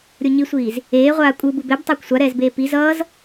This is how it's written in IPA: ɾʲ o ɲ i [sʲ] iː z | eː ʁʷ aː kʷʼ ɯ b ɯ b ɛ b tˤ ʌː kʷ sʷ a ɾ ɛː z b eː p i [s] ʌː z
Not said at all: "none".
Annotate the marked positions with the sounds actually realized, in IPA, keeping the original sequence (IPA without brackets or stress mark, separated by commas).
sʷ, z